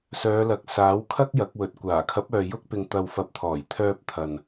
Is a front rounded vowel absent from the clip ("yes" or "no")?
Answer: no